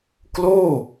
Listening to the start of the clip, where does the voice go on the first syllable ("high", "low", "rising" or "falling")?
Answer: falling